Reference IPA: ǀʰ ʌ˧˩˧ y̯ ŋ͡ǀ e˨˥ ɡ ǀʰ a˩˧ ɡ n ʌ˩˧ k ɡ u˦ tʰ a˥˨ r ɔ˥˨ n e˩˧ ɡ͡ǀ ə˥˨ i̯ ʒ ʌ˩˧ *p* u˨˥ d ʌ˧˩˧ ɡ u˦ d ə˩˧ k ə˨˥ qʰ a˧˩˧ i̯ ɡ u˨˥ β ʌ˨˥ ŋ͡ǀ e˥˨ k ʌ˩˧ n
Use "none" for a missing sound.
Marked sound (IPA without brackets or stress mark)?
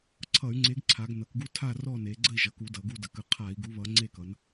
k